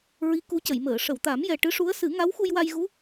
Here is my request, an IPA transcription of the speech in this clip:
ɹ i˧˥ k u˧˥ c ə˨˩˨ j m əː˨˩˨ ʂ ə˨˩˨ w t̪ a˨˩˦ m j ɛ˨˩ ʈ ɨ˧˥ ʂ u˧˥ ə̯ s ɨ˨˩˦ ŋ a˧˥ w x u˧ j w a˧ j ɣ u˧˥

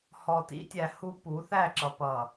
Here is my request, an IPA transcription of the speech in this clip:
h ɔ˨ t ḭ˦ tʲ æ˨ h u˦ p u˨˦ θ æ˦˨ ǁ ʌ˨ p ʌ˨

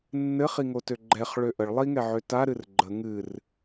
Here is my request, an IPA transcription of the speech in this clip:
nː ɘ χ i ŋ o t ø ɡ͡ǃ ɛ χ ɭ ø ʔ ə ɭ lˠ i ŋ ɛ ʕ ø t a ɾ ɨ r ɡ͡ǃ ə ŋ ɨ r

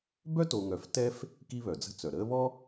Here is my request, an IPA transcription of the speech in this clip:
b œ˥ t o˨ ŋ œ˨ f t ɛ˦ f | k i˦ β œ˩ d͡z ə̤˦ t͡s œ˩ ɾ əː˦ β ɔ˥

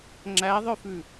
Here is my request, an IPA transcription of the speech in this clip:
ŋ͡ǁ æ ðˤ œ f ʉ

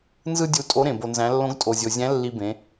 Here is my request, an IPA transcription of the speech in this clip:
n z ɯ˥ dʲ u˧ tʼ o˧˥ ɾ ẽ˩ b o˩ n z æ̃˩˧ lː õ˧˥ ɡ tʼ o˩ zʲ o˩ zʲ æ̃˧˥ lː i˧ b ẽ˩˧

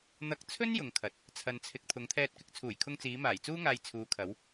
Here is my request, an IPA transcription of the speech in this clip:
n̪ ɐ˧ k̚ t͡sʰ ɵ˥ n j ʊ˨ ŋ kʰ ɐ˨˥ t̚ | t͡sʰ ɐ˨ n t͡sʰ ɪ˨ k̚ t̪ʰ ʊ˨˧ ŋ t̪ʰ ɛː˧ t̚ k ɪ˨˥ k̚ t͡sʰ uː˨˩ j kʰ ʊ˧ ŋ t͡s iː˨˧ m aː˨˩ j t͡s uː˥ ŋ aː˧ j t͡sʰ uː˨˧ kʰ ɐ˨˧ w

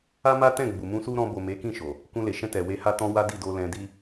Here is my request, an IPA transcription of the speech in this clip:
a˦ m a˦ t ɛ̃˦˨ ɡ͡b u˨ m ũ˧ s u˦ ɾ ɔ̃˧ b o˨ m e˨˦ k ĩ˦˨ ʃ o˨ | k ũ˧ l e˨ ʃ ɛ̃˧ t ɛ˨ w e˧ h a˦ t ɔ̃˦ w a˦ d i˦˨ d o˧ l ɛ̃˧ d i˦

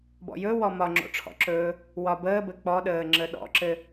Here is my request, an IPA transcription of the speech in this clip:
b ɔ̰ j ɵ w ɔ m ɒ ŋ͡ǁ o̰ ʈ͡ʂʰ ɔ̰ ǁ ɵː | w ɒ b əː b ɘ k͡p ɔ ɗ əː ŋ͡ǁ ə ɗ ɔ̰ ǁ ɘ

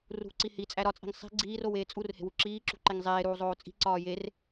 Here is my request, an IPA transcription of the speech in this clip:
r ṳ ǀ i h i t͡sʼ æ ɾ ɒ t͡sʼ i̤ ŋ sˤ i̤ ɡ͡ǀ iː r o w eː t͡sʼ u r h e̤ w u ǁ iː ǁ ṳ ǃ e ŋ zˤ eː ɾ uː zˤ oː t͡sʼ i̤ ǀ ɒː j e r

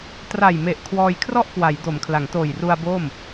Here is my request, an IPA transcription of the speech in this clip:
t r a˨˩ j m e˨˩ ʔ kʰ w ɔː˧ j kʰ r ɔ˥˩ ʔ k w a˩˦ j d o˩˦ m kʰ l a˩˦ ŋ t oː˨˩ j r u˧ a̯ b oː˥˩ m

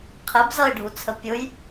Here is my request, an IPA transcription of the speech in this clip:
qʰ ɛ b z ʌ ɪ̯ ɖʱ u t͡sʰ ə pʲ ʊ j

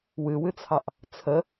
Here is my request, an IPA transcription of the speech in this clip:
w ɨ w ɨ t͡sʰ ɑ ʔ | t͡sʰ ə

